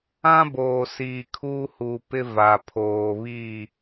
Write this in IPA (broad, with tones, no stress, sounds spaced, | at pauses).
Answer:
ã˦ b oː˨ s iː˨ kʰ uː˦ h uː˨ p ɪ˦ v a˨ pʰ oː˨ β i˦˨